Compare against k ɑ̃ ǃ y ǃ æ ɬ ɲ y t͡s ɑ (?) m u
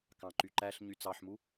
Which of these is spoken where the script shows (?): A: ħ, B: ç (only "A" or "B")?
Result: A